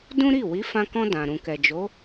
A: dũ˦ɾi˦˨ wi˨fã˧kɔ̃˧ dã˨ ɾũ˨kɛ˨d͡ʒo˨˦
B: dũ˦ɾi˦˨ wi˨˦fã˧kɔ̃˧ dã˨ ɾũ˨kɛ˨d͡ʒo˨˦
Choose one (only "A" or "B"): B